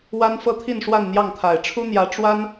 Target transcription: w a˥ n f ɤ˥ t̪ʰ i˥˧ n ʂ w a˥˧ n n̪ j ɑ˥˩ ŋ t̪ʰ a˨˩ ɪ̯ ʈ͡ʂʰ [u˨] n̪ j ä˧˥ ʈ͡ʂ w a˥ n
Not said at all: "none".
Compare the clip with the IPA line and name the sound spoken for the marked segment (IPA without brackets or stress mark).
u˥